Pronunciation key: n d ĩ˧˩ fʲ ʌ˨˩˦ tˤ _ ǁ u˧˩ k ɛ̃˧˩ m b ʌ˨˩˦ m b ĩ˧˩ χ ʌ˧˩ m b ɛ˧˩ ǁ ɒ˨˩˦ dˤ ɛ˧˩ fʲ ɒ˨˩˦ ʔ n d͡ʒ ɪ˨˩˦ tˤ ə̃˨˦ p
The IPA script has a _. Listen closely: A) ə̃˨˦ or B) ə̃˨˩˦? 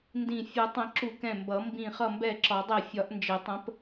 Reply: B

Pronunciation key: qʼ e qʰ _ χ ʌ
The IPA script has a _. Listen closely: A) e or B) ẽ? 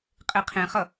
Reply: B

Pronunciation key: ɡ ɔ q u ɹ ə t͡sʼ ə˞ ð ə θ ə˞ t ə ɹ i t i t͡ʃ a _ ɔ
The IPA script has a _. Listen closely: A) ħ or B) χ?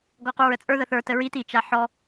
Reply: A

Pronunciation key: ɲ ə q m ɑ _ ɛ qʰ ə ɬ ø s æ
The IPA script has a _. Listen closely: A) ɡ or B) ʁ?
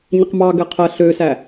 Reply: A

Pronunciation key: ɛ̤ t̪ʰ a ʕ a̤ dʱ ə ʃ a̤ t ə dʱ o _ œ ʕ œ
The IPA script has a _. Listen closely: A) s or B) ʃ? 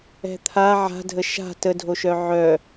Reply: B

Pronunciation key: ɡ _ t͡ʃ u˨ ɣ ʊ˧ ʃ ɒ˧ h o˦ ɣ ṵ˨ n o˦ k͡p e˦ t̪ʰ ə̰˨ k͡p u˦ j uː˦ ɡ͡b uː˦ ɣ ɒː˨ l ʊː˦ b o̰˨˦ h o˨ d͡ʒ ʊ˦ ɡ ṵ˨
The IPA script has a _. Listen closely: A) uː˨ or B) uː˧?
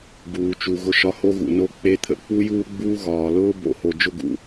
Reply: A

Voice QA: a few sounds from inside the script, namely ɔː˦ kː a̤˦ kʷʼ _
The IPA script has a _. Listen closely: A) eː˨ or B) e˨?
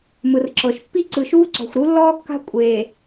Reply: A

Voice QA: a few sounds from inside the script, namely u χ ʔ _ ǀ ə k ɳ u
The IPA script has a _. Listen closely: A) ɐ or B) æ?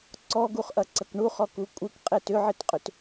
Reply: A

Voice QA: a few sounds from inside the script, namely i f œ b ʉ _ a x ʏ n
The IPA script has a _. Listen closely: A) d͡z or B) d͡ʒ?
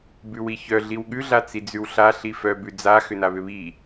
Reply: A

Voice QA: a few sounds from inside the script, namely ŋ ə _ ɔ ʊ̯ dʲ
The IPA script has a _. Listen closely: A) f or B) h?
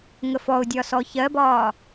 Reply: A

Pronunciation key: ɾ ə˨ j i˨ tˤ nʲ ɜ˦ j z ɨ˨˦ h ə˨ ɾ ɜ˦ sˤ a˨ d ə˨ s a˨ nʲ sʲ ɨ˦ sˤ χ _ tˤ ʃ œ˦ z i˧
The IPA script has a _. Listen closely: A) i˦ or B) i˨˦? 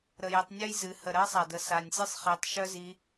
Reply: B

